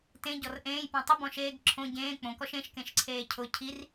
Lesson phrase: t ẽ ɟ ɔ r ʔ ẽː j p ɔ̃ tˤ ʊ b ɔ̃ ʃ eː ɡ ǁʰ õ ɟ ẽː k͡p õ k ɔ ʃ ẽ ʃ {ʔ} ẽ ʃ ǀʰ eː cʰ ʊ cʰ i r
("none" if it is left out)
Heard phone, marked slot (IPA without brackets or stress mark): k